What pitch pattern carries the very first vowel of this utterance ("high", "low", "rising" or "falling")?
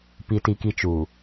high